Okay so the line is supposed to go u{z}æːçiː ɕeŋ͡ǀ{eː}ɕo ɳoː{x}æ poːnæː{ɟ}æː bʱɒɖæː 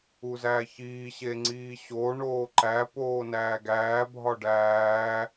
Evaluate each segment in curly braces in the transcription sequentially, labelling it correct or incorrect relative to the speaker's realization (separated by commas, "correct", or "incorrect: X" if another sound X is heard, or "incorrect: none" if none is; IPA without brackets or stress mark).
correct, incorrect: iː, incorrect: ǃ, incorrect: ɡ